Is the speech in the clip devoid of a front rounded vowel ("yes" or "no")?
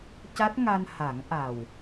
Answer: yes